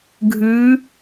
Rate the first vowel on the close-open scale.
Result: close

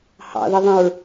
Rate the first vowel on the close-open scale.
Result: open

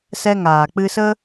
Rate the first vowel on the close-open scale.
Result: mid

